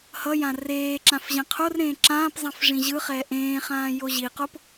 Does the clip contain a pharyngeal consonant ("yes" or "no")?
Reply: no